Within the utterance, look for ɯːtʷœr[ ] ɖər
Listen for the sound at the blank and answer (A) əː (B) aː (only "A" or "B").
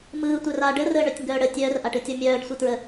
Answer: B